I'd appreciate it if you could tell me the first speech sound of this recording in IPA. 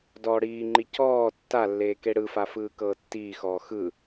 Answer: d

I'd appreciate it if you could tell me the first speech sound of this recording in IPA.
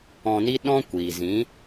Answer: ɔ̃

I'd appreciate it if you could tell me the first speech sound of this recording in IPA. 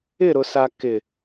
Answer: ɪ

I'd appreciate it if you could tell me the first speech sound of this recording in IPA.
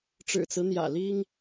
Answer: ʈ͡ʂ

